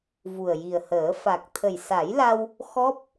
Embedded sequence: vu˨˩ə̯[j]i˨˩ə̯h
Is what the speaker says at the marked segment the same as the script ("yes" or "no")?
yes